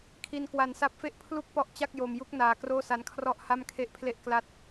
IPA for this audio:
kʰi˧nkwa˧nsa˦˥p̚fe˥˩ʔ pʰlu˥˩k̚ pɔ˥˩ʔ t͡ɕa˥˩k̚jo˧mju˦˥k̚ naː˧kroː˥˩sa˦˥n kʰrɔ˥˩ʔha˥˩mkʰe˥˩ʔpʰle˥˩ʔ kla˦˥t̚

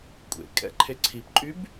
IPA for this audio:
kʷʼḛ kʼɛ̰ ǃʰeǀʰipǃʼyb

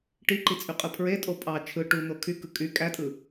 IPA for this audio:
ʈiǃit͡sʼyqʼɯ pʰɹetʼo pʼɑ t͡ʃʰɯ ʈun̪o kʰykɯ kʼy kʼætʼɯ

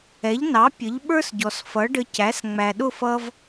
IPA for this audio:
ɛ˩˥ʎnɑ˩˥ pʲə˩˥ʎɓə˞˥sɟɔ˩s fʌ˩˥ɖə˧cæ˩˥s ŋ͡mæ˩ɗʊ˥˩fʌ˧v

